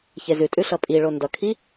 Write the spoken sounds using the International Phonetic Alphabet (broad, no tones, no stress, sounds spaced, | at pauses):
ç e z ʉ tʼ ʉ ɬ ʌ pʼ i ɭ o n d ʌ kʰ i